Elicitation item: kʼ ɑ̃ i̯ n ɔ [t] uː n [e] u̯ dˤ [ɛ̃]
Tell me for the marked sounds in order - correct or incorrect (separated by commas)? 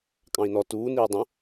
correct, incorrect, incorrect